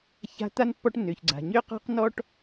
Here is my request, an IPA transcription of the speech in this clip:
ç a̤˦ t̪ a˥ n pː ɔ˦ ʈ nː ø˩ ç ɡ͡ǀ a̤˩ ɲ ø˥ q ɔ̤˥ q n ɔ˥ ʈ

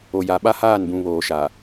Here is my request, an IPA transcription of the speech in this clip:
o˨ j a˨ ɓ a˦ h aː˦˨ n b ũ˨ β oː˨ ʃ a˨

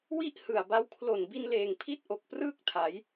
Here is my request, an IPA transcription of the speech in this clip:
w i˥˩ ʔ h ɯ˨˩ a̯ b a˦˥ w kʰ l o˨˩ n b i˧ n l eː˨˩ ŋ pʰ i˥˩ t̚ ʔ o˨˩ k̚ p r ɯː˥˩ k̚ tʰ a˩˦ j

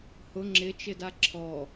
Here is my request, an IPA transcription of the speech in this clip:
h ʊ ŋ͡ǁ ɪ t͡ʃ ɪ d a ǁʰ ɔ

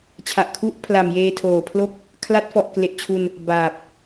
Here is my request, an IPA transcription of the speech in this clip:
t͡ɕʰ a˨˩ ʔ kʰ u˦˥ ʔ pʰ l a˨˩ m j eː˧ tʰ oː˨˩ pʰ l o˥˩ k̚ | kʰ l a˦˥ t̚ f ɔ˨˩ ʔ k l e˨˩ ʔ t͡ɕʰ u˧ n | b aː˨˩ p̚

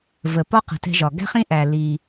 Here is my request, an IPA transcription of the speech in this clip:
v ə˩ p ɒ˥ q ə̤˩ t ɛ̤˧ ʒ ɒ˩ ɡ æ̤˥ χ ĩ˥ ʔ æ˩ l i˩

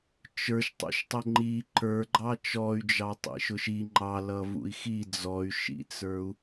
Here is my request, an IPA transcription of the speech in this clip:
t͡ʃ ə˞ ʃ tˤ ṵ ʃ tˤ ʊ ŋ͡ǃ i ǃ ə˞ ɡ͡ǃ ɑ t͡ʃ ɔ y̯ d͡ʒ ɑ tˤ ḭ ʃ ʊ ʃ i ŋ͡ǃ ɑ l ʌ v ṵ i̯ x i d͡z ɔ y̯ ʃ ḭ t͡s ə˞ u̯

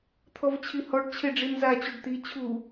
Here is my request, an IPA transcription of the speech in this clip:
t̪ʰ ɔ v t͡ɕʰ i h ɔ ɖ t͡ɕʰ e ɖ͡ʐ i n z a t͡ɕ u ɖ t̪ i t͡ɕʰ u

